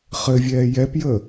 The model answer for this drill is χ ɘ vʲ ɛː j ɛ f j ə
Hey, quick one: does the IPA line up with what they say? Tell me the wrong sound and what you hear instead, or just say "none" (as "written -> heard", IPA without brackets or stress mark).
f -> p